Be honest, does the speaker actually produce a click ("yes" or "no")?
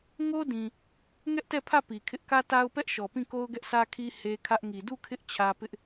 no